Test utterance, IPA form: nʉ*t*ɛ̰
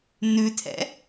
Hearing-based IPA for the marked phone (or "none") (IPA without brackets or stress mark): tʰ